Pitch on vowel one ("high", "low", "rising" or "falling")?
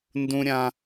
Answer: high